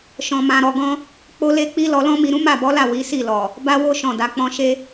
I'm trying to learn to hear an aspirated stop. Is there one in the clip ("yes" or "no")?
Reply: no